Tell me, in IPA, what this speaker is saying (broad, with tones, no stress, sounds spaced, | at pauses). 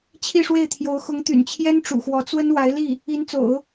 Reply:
t͡ɕʰ i˥˧ ʂ w e˥˩ ɪ̯ t̪ʰ j o˧˥ ʊ̯ x ʊ˧˥ ŋ t̪ y̰˨˩ n t͡ɕʰ j ɛ˥ n ʈ͡ʂ ṵ˨˩ x w ɔ˧˥ t͡s w ə˥ n w a˧˥ ɪ̯ l i˥˩ | i˧˥ n t͡s o̰˨˩˦ ʊ̯